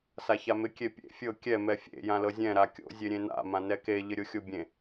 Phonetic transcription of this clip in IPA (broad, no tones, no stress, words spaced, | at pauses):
saçamɪ kʲepʲḛ fʲɤ kʲɛ mɛfʲḛ jãlɤzʲɛ̃ ɾakʲo̰ zʲeɾʲẽna̰ mãnɛke ʎɪɾʲoxʲobʲẽ